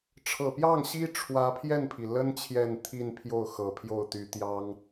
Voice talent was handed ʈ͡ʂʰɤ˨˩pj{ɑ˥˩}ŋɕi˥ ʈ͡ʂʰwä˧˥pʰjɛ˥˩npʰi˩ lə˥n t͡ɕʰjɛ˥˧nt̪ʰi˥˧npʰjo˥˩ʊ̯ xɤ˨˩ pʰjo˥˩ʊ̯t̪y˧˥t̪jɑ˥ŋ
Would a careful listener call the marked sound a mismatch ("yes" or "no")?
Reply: no